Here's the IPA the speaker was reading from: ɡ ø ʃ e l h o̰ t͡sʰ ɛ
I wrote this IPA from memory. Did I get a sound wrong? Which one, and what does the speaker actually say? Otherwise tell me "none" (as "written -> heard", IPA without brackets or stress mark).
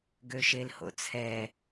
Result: none